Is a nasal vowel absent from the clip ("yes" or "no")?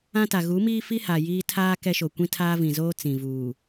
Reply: no